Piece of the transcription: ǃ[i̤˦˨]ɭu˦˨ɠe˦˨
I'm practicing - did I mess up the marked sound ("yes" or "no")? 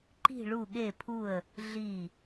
no